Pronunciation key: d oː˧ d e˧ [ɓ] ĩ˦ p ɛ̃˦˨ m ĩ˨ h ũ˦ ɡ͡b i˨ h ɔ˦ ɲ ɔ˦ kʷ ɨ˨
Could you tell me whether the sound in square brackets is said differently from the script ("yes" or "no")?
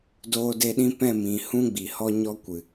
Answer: yes